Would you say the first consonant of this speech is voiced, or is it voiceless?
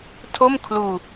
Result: voiceless